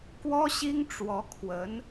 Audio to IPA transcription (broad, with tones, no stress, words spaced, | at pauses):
kwɔ˥ɕi˥ŋ ʈ͡ʂwɔ˧˥ kʰwə˧˥n